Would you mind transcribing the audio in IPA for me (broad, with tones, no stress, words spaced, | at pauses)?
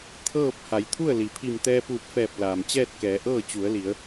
t̪ʰɤː˥˨p̚ ha˩˧jt̪ʰu˥˨ə̯li˩pʰi˧˩m t̪ɛː˧puː˧˩p̚fɛː˧˩p̚ laː˩mt͡ɕɛː˥˨t̚kɛː˩˧ ʔɤː˥˨t͡ɕu˩˧ə̯li˩˧ə̯